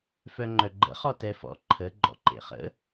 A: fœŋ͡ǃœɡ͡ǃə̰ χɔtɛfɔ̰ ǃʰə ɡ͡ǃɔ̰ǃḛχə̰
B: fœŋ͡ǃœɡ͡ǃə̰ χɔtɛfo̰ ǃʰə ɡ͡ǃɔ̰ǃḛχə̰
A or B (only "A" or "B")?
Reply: A